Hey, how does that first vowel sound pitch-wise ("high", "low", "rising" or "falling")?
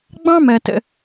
high